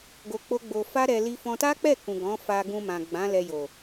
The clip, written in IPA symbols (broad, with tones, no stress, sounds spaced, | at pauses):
ɡ o˧ k͡p o˦ ɡ͡b o˧ f a˦ ɾ ɛ˧ l i˧ f ɔ̃˧ t a˦ k͡p ɛ˦˨ k ũ˨ ɡ ɔ̃˨˦ f a˧ ɡ ũ˧ m ã˨ ɡ͡b ã˨˦ l ɛ˧ j o˨